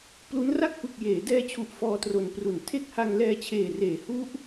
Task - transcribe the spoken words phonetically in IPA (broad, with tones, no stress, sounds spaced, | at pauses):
p l u˦˥ n r a˥˩ k̚ p ɯ˨˩ k̚ j eː˩˦ d ɛː˧ t͡ɕʰ u˨˩ ʔ f ɔː˧ t r o˨˩ n p r u˩˦ n tʰ e˥˩ k̚ h a˧ ŋ l ɛː˧ t͡ɕʰ eː˨˩ r eː˩˦ h u˦˥ ʔ